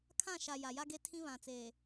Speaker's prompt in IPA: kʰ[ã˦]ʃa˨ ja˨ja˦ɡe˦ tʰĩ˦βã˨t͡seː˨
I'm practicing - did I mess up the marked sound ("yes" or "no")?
yes